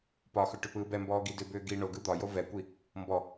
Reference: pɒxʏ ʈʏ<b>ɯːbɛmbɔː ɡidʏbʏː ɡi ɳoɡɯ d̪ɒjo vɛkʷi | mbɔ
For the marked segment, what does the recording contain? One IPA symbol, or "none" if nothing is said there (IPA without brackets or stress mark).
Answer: p